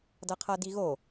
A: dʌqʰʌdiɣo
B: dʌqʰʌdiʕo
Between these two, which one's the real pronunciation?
A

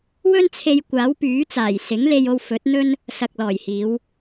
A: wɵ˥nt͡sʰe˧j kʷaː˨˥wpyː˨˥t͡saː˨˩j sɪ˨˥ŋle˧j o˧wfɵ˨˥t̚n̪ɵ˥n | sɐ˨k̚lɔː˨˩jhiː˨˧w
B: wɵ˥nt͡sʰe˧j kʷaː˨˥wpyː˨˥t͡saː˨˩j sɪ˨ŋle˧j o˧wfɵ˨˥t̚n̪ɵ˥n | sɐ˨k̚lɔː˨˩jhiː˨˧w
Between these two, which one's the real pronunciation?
A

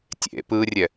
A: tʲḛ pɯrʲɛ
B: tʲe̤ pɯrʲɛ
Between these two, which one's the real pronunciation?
A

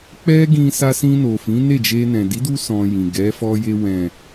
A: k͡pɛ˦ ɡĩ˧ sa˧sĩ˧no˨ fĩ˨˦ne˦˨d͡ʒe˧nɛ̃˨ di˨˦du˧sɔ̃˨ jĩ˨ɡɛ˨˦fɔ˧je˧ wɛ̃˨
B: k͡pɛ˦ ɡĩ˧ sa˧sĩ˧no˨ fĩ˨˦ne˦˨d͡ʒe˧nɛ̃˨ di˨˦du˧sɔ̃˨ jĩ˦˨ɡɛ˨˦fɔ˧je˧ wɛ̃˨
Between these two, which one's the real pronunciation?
A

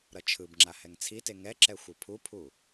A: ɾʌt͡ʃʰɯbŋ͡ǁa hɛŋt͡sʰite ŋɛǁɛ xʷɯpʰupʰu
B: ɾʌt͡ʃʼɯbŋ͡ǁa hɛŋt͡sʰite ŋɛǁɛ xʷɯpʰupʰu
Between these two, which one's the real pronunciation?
A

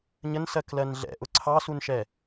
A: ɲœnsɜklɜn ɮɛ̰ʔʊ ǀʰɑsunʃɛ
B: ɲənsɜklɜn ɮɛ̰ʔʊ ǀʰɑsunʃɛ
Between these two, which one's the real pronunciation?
B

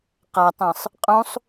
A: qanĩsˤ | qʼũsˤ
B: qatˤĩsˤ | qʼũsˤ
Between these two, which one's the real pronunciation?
B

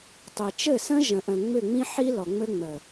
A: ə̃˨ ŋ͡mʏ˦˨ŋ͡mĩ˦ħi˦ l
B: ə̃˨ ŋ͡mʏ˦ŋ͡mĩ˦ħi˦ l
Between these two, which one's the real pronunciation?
A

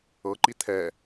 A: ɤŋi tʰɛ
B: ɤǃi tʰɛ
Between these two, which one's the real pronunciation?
B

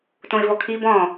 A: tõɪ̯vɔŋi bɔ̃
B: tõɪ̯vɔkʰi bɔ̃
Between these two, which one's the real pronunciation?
B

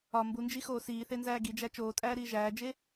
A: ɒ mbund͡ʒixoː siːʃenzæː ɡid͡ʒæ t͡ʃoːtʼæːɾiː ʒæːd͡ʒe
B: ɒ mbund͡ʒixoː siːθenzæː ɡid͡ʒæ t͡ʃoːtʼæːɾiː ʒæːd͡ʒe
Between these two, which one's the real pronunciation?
B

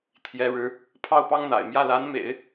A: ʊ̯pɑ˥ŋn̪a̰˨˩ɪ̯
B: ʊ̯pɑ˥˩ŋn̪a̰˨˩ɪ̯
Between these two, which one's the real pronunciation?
A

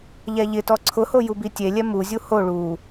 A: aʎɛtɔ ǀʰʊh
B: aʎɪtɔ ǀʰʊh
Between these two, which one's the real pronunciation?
B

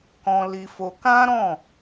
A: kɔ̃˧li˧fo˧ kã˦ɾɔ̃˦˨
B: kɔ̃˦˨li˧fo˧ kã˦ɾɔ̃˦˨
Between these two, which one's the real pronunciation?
A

